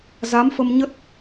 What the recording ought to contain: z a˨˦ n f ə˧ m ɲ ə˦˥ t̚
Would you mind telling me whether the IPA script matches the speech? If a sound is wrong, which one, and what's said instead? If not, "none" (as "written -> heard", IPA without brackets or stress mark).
n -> m